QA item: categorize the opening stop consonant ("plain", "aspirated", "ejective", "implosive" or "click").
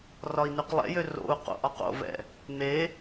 plain